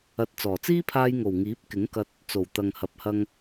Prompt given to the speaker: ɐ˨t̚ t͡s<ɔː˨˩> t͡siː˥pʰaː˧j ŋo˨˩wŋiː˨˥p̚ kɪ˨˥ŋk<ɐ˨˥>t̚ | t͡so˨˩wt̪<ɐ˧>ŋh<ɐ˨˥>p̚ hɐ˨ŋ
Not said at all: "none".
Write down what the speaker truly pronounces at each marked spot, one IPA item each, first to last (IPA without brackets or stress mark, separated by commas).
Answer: ɔː˨˩, ɐ˧, ɐ˨, ɐ˨